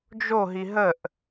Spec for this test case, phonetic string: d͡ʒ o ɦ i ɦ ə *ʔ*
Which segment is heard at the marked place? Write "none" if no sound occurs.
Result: ʔ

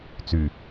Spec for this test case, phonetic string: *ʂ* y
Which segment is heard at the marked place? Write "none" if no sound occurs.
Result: t͡s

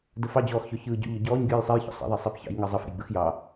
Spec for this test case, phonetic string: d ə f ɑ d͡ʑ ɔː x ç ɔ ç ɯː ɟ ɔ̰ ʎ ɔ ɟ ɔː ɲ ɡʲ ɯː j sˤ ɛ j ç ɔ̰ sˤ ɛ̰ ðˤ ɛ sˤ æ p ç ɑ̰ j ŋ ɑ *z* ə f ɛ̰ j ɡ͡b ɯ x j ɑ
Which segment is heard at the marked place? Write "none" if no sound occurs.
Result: zˤ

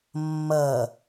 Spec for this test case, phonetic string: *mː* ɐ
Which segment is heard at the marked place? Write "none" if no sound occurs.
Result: mː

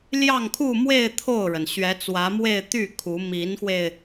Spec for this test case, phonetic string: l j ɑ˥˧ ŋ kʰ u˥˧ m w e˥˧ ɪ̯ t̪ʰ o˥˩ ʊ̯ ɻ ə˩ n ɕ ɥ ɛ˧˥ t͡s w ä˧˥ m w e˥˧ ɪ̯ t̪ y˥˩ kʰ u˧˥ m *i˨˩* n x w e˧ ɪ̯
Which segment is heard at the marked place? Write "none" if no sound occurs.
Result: i˧˥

